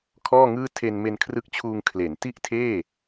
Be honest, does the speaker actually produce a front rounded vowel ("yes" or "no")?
no